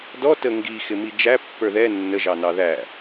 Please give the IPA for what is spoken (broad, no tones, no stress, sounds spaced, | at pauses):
d ɔ t ə ŋ ɡ i x ɪ m i d͡ʒ æ pː ə˞ ð ɛ nː ə ʒ ɑ n ɑ ð æ